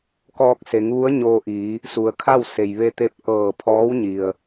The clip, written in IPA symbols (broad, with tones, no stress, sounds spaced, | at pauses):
k ɔː˧ k̚ s e˩˧ ŋ ʋ u˧˥ ə̯ ɲ oː˧ ʔ iː˩˧ | s u˩ ə̯ kʰ a˥˨ w s e˩ j ʋ e˧ t̪ e˧ p̚ ʔ ɤː˧˩ pʰ ɔː˧˥ w ɲ i˩ ə̯